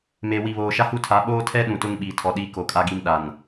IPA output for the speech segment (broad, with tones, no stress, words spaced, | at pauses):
me˨ wi˨βoː˨ʃa˦ hu˦˨tʰa˨˦ ɓoː˦tʰɛ˦ ɗũ˨tʊ˦ŋ ɓiː˨tʰɔ˨ɗiː˦ ko˨kʼa˦ɡi˦m ɗa˨n